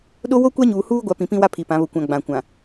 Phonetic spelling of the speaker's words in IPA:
ɗ o˦ w o˦ kʷ a˦ ɲ uː˨ h uː˦ ɡʷ a˨˦ p ĩ˨ p ĩ˦ w a˦ pʰ i˨ p ã˨˦ β ʊ˨ kʷ ã˨ ɡ͡b ã˨ kʷ ã˨

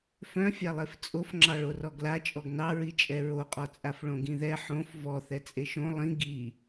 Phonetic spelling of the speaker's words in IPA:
f œ̃ fʲ a lˠ e f t͡sʼ o f ŋ͡ǁ ɑ ɭ o r ɔ ɡ l a t͡ʃʼ ɔ ɡ n ɑ ɹ i t͡ʃʼ ɛ ɹ o qʼ ɔ t͡sʼ a f ɭ õ ɡ ĩ ð ɛ ħ õ f v ɔ θ ɛ t͡sʼ e ʃ õ lˠ ĩ ɡ i

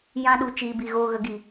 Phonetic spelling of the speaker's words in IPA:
j ã˦ ɗ u˧ t͡ʃ iː˨ b i˨ ɣ oː˧ ɣ ə˨˦ ɡ iː˨

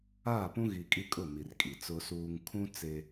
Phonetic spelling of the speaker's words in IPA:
aː˦˨ p ũ˦ ɣ i˨ kʼ i˦ kʼ ʊ˦˨ m i˨ r kʼ i˨ t͡s ʊ˦ s uː˦ ŋ kʰ ũ˦ t͡s e˦

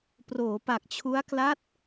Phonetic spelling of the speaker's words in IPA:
p r oː˩˦ p a˨˩ k̚ t͡ɕʰ u˦˥ a̯ k l a˦˥ t̚

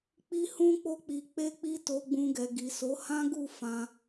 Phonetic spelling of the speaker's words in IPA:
k͡p i˧ h ũ˧ k͡p o˧ k͡p i˨ k͡p e˧ k͡p i˧ t o˧ ɡ͡b ũ˧ ɡ ɛ˨ ɡ i˨ s o˨˦ h ã˦ ɡ u˦˨ f ã˧

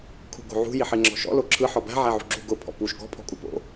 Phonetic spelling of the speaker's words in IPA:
kʰ ṳ ɡ o̤ ʕ ṳ j i ħ i ŋ͡ǁ ɔ̤ ʃ ɔ̰ l o ǁʰ ɯ ħ ɔ b æ̤ ʕ æ ʕ ṳ ɡ͡ǁ ṳ ɡ ʊ pʰ ɔ̰ p u ʃ ɡ ɔ̤ pʰ ɔ̤ kʼ u p o̰

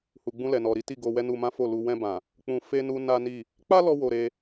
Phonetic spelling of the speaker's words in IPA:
h u˨ ɡ͡b ũ˧ l ɛ˨ n ɔ˨ ɾ i˨˦ t i˦˨ ɡ o˧ w ɛ˦ n u˧ m ã˦ f o˦˨ l u˧ w ɛ̃˧ b ã˨ | k͡p ũ˧ f e˦ n u˦ n a˦ n i˦˨ | k͡p a˦ l ɔ˧ w o˧ ɾ e˧

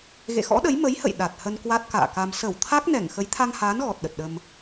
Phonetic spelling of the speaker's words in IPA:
ɣ ḛ˧˨ x ɔ̰˧˥ ɗ ə˨˦ j m ə˨˦ j h ə̰˧˨ j ɗ a˨˩ t̚ h ə˧ n k w a˦˥ t̚ k a̰ː˧˨ k a˧ m s ə˧˩ w t̪ʰ a˦˥ k̚ n ɛ˧˩ ŋ x ə˨˦ j t̪ʰ a˧ ŋ h aː˨˦ n ɣ ɔ˨˩ t̚ ɗ ə˨˩ t̚ ɗ ə˧ m

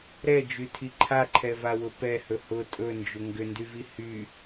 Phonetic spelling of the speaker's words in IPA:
ɾ ɛ d͡ʒ y tʰ i ǃʰ a ǃʰ ɛ v a w ʊ p ɛ h ɵ h ʊ tʼ ɵ n d͡ʒ ʏ ŋ ɡ ʏ n d y v i h y

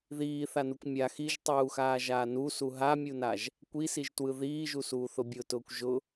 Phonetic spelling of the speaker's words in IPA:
ð iː θ a n u kʷ mʲ a x i ʒ tˤ uː x aː ʒ aː n u s u ɦ a mʲ u n a ʒ | kʷ i s i ʒ t w ɯ ð iː ʒ u s uː θ ʊ bʲ ʊ t ʊː kʷ ʒ ʊ

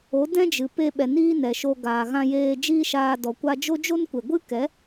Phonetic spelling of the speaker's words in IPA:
o˨˦ d ɛ̃˦ d͡ʒ ɨ˨ p e˧ ɓ ɛ˨ n iː˦ n ɛ˨ ʃ o˧ ɡ aː˨ ɣ ã˧ j eː˧ d͡ʒ iː˦ ʃ aː˧ d ɔ˨ kʷ a˧ d͡ʒ o˦ d͡ʒ o˦ n kʷ e˨ ɡʷ ɨ˦ k ɛ˨˦

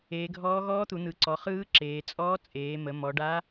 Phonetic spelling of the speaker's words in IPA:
eː˩˧ ɡʱ ɔː˧˥ ɣ ɔː˧˥ t̪ u˩˧ n̪ ɯ˩˧ ǀ ɔ˩˧ χ ɯː˧˥ ǁ eː˩˧ t͡sʼ ɔː˧˥ t͡sʼ eː˩˧ m ə˩˧ m ɔ˩˧ ɖ a˧˥

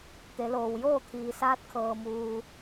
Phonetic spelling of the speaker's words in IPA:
t̪ e˩˧ l oː˩ w j oː˥˨ t̪ʰ iː˩ s aː˧ t̚ kʰ ɤː˩ m uː˩

